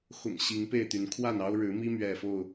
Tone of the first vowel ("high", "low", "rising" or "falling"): low